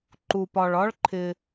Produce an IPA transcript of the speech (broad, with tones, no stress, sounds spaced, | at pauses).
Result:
ǃ u˧ p ɒ˧ ɭ ɒ˥ ɭ ǃʰ ɪ˧